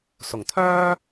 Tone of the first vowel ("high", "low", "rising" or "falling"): low